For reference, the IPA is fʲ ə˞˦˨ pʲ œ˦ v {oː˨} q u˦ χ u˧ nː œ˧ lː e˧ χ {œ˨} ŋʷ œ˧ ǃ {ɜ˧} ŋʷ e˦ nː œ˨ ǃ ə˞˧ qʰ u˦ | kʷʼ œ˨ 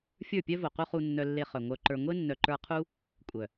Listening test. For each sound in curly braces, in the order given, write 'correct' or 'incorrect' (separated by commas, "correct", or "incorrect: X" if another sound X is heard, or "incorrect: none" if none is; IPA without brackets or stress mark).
incorrect: o˨, correct, incorrect: ə˞˧